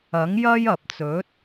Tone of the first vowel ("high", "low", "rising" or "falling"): rising